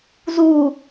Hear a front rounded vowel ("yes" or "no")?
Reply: no